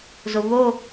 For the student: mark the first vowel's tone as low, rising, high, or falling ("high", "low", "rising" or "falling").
low